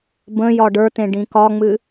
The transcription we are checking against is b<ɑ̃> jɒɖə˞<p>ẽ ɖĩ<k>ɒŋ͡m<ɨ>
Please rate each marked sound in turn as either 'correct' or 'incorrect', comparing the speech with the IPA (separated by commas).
incorrect, incorrect, correct, correct